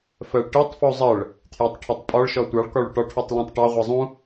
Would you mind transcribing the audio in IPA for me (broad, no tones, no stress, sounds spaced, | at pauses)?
f ɜ ɭ ʈ i tˤ f u zˤ ɜ ɭ | tʰ j ʊ tˤ ʈʰ ɜ tˤ pʼ ɒ ɭ ʃ ɔ tʷ ɑ ɭ k ɒ ɭ ʊ ʈ ɒ ʈʰ u tˤ l ũ tˤ ʈ ɑ ʁʷ ɛ zˤ ũ